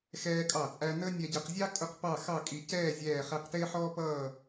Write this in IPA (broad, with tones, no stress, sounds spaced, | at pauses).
x ɛː˧ kʼ ɑ˧˩ t͡sʼ æ˧ n ə˥ nʲ ɛ˧ ɟ ʌ˧ q zʲ ɑ˥ kʼ ʊ˥˧ q p ɑ˥˧ x ɑ˥˧ kʼ i˧ c ɛː˥˧ zʲ ɛː˥˧ χ æ˥ q t ɪː˥ ħ ɔː˥ p ʌː˥˧